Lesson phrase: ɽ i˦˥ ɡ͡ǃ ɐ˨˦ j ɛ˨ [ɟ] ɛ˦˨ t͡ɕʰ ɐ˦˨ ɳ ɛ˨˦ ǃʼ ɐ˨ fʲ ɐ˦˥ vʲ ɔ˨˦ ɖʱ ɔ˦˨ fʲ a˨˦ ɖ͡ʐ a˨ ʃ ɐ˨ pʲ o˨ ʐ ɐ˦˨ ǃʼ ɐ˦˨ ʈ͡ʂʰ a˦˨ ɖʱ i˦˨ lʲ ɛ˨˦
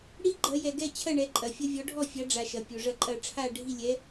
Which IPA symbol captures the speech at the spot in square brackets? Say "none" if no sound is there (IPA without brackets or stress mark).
ɡ